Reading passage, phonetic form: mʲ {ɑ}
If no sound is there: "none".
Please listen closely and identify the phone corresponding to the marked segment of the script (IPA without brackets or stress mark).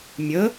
ə